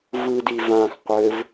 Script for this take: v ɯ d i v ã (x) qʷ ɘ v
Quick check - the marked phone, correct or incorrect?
correct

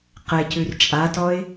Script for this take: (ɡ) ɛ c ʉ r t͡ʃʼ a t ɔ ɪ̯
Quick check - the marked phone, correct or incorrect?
incorrect: q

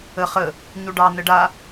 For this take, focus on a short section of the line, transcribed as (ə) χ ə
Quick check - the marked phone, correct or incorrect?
correct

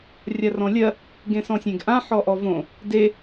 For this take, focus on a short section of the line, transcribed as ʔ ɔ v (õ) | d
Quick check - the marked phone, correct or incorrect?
correct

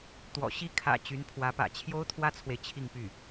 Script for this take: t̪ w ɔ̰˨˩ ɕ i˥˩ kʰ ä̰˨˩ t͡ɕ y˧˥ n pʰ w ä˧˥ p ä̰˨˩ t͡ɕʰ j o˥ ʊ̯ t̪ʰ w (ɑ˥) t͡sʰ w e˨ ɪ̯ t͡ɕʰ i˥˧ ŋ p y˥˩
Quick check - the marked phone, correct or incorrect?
incorrect: ä˥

